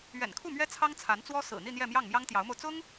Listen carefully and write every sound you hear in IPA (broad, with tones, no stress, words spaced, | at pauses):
ɥɛ̰˨˩nkʰu˥˩mɥɛ˥ t͡sʰɑ˥ŋt͡sʰa˧˥nt͡swɔ˥ sɹ̩˨˩n̪i˥˧n̪jɛ˥˧mjɑ˥˩ŋ mjɑ˥ŋt̪jɑ˧˥ʊ̯mo˧ʊ̯ t͡sʊ˥ŋ